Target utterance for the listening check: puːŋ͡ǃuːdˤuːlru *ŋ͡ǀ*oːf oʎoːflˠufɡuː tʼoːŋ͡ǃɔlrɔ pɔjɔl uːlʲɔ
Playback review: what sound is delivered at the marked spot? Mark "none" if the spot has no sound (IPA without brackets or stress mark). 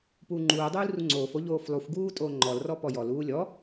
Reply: ŋ͡ǀ